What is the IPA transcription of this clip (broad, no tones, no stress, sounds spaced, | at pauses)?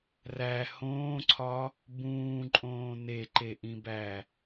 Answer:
r æ h õː ǀʰ ɒ | b ũː ǃʼ õː n e ǃ e ʔ ĩ b æ